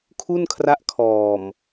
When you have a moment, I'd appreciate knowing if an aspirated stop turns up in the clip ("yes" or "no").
yes